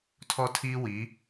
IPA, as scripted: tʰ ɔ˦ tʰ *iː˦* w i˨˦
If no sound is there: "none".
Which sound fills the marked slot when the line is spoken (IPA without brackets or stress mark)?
iː˦